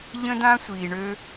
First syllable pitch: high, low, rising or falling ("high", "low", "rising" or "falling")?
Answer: high